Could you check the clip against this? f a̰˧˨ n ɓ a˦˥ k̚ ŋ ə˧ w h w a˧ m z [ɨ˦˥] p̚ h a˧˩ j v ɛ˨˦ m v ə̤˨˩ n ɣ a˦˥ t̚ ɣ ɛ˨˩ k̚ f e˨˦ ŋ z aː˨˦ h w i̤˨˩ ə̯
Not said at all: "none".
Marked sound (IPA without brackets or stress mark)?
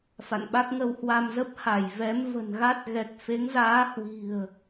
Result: ə˦˥